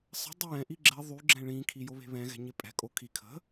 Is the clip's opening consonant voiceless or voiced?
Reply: voiceless